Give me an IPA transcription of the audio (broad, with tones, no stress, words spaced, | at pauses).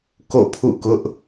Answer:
ko̰˦˨pʰṵ˦˨kʊ˦ʔ